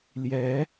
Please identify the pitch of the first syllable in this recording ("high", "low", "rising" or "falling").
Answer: rising